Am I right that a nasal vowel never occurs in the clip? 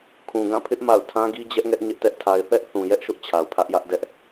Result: no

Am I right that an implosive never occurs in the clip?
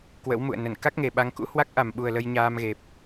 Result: no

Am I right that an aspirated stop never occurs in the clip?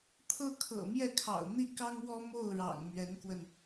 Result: no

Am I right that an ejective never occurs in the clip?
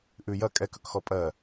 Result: no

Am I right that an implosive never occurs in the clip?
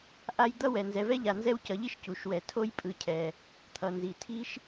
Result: yes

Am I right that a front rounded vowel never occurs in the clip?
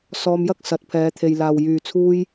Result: no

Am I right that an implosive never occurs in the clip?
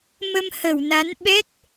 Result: no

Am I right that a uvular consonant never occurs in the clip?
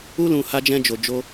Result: yes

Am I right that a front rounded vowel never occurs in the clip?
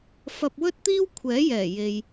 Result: yes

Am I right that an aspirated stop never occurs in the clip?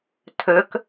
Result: no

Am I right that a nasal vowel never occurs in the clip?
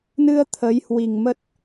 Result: yes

